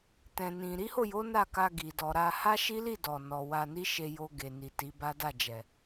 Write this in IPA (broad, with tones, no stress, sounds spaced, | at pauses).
t ɛ̃˨ n ĩ˨ ɾ i˨˦ h o˦˨ j o˨˦ n a˦˨ k a˧ ɡ i˨ d ɔ˧ ɾ a˦ h a˦ ʃ i˦ l i˦˨ d ɔ˨ n ɔ˨ w a˧ n i˦ ʃ e˧ j o˧ ɡ e˨ n i˨ t i˨˦ b a˦ d a˦˨ d͡ʒ ɛ˨